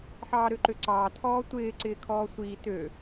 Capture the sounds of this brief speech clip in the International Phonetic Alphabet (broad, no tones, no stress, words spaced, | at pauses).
ħɑːɾøǃøǀɑː tʰɔːtʷɪː ǀɪːkʰɔːsʷiː tø